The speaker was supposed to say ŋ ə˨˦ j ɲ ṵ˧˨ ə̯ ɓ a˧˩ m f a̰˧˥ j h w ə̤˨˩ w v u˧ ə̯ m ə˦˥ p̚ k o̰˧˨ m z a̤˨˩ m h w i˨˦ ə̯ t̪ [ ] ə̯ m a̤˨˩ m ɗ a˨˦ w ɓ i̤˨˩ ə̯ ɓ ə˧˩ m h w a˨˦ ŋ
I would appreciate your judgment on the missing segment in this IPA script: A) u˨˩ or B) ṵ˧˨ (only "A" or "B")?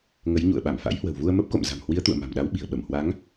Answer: B